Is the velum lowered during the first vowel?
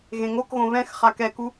yes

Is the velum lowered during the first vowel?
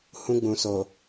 yes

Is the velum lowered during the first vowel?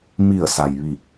no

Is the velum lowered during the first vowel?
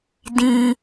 yes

